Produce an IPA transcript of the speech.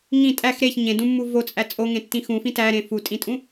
ŋ ĩ tʼ æ x ɾ e ç ɲ ẽ d ũ mː u v o t͡sʼ æ t͡sʼ o ŋ ẽ tː ĩ x ũ f ĩ t æ ɾ ẽ f u tʼ ĩ tʼ ũ

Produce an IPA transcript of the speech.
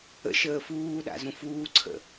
ə̰ ʃ əː f uː ɗ a̰ z ũ f uː ǀʰ ə̰

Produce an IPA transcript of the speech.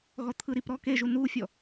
ɣ ɔ t̪ʰ ɯ ɾ i p ɾ ɔ k e ʒ u n u fʲ ɔ

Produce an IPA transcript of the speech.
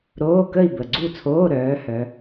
ɾ oː˧˥˧ k ə˥˨ i̯ b ə˨˩ ɡ͡ǀ u˥˨ t͡sʰ oː˧˥˧ ɾ œː˨˦ h œ˨˦

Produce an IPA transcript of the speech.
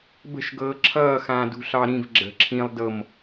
b ə̤ ʃ ɡ ɤː ǁʰ ʌː x ãː d ṳ ɬ ɑ ɾ ĩ v ɡ͡ǁ ə̤ ǁʰ ĩ lˠ d ɤ m

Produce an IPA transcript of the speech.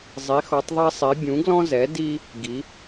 zˤ i˩˧ x ɔ˩˧ tˤ ðˤ ɛ˧ sˤ i˩˧ bʲ ũ˩˧ ɡ l ɔ̃˧ z ɛ˩˧ d i˧ | ɡ i˩˧

